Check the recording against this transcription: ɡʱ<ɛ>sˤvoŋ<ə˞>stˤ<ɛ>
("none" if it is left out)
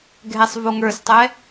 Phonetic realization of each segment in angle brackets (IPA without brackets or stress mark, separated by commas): ɛ, ə˞, ɛ